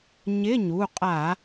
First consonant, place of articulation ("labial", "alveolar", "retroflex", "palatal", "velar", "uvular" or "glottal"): palatal